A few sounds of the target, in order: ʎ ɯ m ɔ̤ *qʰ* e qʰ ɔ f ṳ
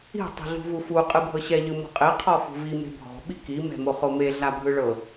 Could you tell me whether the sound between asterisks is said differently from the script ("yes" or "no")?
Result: yes